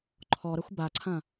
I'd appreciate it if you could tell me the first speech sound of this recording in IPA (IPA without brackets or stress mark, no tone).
ǃʰ